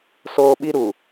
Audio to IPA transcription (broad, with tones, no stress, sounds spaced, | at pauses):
s oː˦ ɓ i˦ ɾ u˨